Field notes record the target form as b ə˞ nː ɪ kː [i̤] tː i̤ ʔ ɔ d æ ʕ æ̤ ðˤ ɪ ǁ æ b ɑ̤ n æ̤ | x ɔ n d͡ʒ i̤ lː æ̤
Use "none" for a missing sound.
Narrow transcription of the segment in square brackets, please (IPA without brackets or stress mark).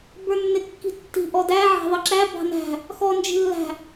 i̤